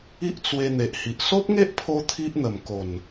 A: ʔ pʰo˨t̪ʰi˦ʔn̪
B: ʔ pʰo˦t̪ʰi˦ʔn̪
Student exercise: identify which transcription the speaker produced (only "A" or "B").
B